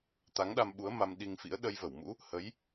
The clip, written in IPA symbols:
t̪ a˨˦ ŋ ɗ a˧ m ɓ u˨˦ ə̯ m a˧ m ɗ i˧ ŋ f ḭ˧˥ ə̯ ɗ ə˧ j v ə˧˩ w m ṵ˧˥ | h ə˨˦ j

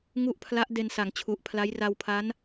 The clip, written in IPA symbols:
ŋ u˥˩ ʔ pʰ l a˦˥ ʔ d e˧ n s a˩˦ ŋ t͡ɕʰ u˨˩ ʔ pʰ l a˦˥ j r a˧ w pʰ a˦˥ n

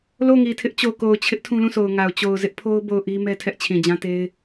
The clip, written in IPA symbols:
l o˦˨ ŋ i˨ tʰ ɪ˦ ʔ t͡ɕ o˨ k o˨ ʊ̯ t͡ɕʰ ɪ˦ ʔ tʰ ũ˦ l ũ˦˨ sʰ o˨ ʊ̯ ŋ a˨ ʊ̯ t͡ɕ o˨ ʊ̯ z ɪ˦ ʔ pʰ o˦ ʊ̯ b o˦˨ ʊ̯ ʔ i˦ m ɛ˦ tʰ ɛ˦ ʔ t͡ɕʰ ĩ˨ d͡ʑ ã˦ t e˦ ɪ̯

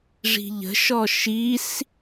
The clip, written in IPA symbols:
ʐ i̤ ʎ ə̤ ʃ ɔ ʃ i s

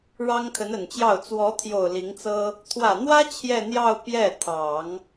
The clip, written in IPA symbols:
ɻ ɑ˥ ŋ kʰ ə˧˥ n ə˨˩ n t͡ɕ j ɑ˥˩ ʊ̯ t͡s w ɔ˧˥ t̪ʰ j o˨˩ ʊ̯ l i˧˥ ŋ t͡s ɤ˥ | t̪ʰ w ä˨˩ n̪ w ä˥ t͡ɕʰ j ɛ˥˧ n̪ j ɑ˥˧ ʊ̯ p j ɛ˥˩ t̪ʰ ɑ˨˩˦ ŋ

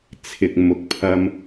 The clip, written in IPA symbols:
t͡sʰ ɪ˨ k̚ m ʊ˨ k̚ pʰ ɐ˧ m

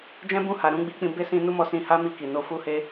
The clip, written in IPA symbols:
d͡ʒ ɛ̃˦ b ũ˦˨ h a˨ ɾ ũ˨˦ ɡ͡b i˧ k͡p ĩ˧ b e˦ s ĩ˧ n u˦ m ɔ˧ s ĩ˧ h a˦ m i˧ k i˨ n o˧ f u˧ h e˧

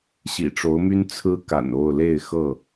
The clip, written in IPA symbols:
ɕ ḭ˨˩ ʈ͡ʂ o˨˦ ʊ̯ m y˦ n t͡sʰ ɹ̩˦ k a̰˨˩ n o˥˨ ʊ̯ l e˥˨ ɪ̯ x ɤ˥˨

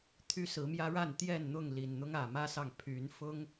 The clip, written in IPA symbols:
t̪ʰ y˦ s ɹ̩˨˦ m j ä˦ ɻ a˥˨ n t̪ j ɛ˥˨ n n̪ ʊ˥˨ ŋ l i˨˩ n n̪ ʊ˦ ŋ ä˨˩ m ä˦ s ɑ˨ ŋ pʰ y˨˦ n f ʊ˦ ŋ

